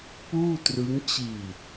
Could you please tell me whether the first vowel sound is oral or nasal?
oral